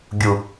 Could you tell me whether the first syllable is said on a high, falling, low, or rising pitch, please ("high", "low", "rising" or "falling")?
low